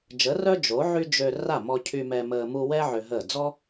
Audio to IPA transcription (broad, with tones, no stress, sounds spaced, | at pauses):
d͡ʒ ə˨˦ r œ˦ d͡ʒ o˨˦ ʕ y˦ d͡ʒ ø˧ r a˦˨ m ɔ˧ cʰ y˧ m ɛ˧ m əː˧ m u˧ w ɛ˦ ʕ ø˧ ɦ əː˦˨ d͡z ɔ˦